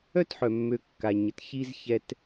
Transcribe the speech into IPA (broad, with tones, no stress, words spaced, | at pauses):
œ˥tħœ˩mːø˨ kːa˩ɲə˥t çi˥zçɛ˦t